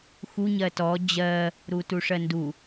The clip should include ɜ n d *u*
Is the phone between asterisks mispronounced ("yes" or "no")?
no